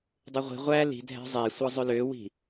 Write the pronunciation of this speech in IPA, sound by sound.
dˤ ɯ ʁʷ i̤ ʁʷ æ l i̤ dʱ æ̤ zˤ e sʷ ɯ zˤ ø l ø w i̤

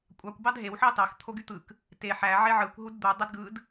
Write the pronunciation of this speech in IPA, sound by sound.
kʷʼ ɑ kʷ b ɑ d ɦ e w ħ ɑ t ɑ x t̪ʰ o ɡ y t̪ ɯ k | t e ħ æ ʕ e ʕ ɯ kʷ ɦ u d d̪ u dˤ i d ɡ ɯ d

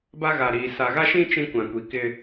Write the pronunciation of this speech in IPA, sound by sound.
b a˦ ɣ a˨ ɾ iː˨ s a˨ ɣ a˦ ʃ ĩ˦ t͡ʃ ĩ˦ kʷ ã˨ kʷ i˨ k ɪ˦

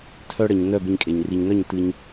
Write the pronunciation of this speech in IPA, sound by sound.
tʰ œ˧ ɽ ɘ˨ ɲ n œ˦˨ b e˧ ɲ kʼ e˨ ɲ r i˨ ɲ n œ˦˨ ɲ t ɨ˦ ɲ

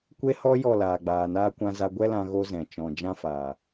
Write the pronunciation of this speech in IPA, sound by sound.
kʷ e˦ h ɔ˦ j ɔ˦˨ l aː˨ ɡ͡b aː˨ n aː˦ kʷ ã˧ z a˧ ɡʷ ɛ˦ l ã˧ ɣ o˦ z ɛ̃˨ t͡ʃ ɔ̃˨ d͡ʒ ã˦ f aː˨

